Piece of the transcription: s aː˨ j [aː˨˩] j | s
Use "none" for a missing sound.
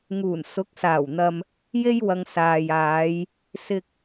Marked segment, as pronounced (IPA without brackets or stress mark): aː˨˧